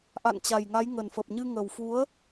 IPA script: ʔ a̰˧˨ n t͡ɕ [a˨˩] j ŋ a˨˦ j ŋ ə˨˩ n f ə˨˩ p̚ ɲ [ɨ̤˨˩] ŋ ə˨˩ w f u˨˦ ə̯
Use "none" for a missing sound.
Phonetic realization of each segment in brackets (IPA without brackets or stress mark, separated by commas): a˨˩, ɨ˧